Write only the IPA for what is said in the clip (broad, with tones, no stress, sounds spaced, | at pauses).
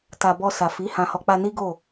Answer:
t a˨ b ɔ˧ s a˨ f i˨˦ h ã˧ h ɔ˧ k͡p a˧ n i˦ ɡ o˦˨